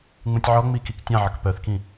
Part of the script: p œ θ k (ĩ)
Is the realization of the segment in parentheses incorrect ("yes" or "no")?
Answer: no